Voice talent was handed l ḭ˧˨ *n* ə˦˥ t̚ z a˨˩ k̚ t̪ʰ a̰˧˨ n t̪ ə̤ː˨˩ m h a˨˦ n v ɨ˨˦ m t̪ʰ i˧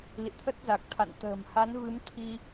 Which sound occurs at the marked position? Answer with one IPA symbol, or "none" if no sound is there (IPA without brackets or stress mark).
t̪ʰ